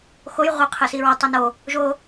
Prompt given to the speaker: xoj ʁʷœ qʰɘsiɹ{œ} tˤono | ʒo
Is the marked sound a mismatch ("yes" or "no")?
yes